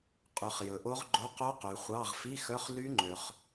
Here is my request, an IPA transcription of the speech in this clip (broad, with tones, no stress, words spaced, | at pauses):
qʼʉ˨χ jɵ˨ʔo˦˥ʁɡ͡ǃo˧˥˧ qo˦˥qʉ˨χʷɑ˧˥˧ʁ fi˧˥˧xœ˧˥˧χly˦˥ŋ͡ǃø˨χ